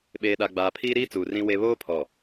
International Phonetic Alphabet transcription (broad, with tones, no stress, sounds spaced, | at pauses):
ɓ eː˨ ɗ a˨ ɡ͡b aː˨ pʰ iː˦ ɾ iː˦ t͡s uː˨ r ĩ˦ w e˦ β oː˦ pʰ ɔ˨